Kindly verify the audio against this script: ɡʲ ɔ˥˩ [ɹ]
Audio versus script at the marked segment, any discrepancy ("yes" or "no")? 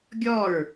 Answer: no